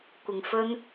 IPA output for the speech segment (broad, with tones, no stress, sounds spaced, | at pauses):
kʷ ɪ˨ ŋ f ɵ˥ n